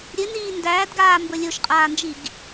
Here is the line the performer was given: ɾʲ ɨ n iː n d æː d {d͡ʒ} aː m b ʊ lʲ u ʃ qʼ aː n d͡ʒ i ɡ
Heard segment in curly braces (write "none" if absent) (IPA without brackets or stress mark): ɡ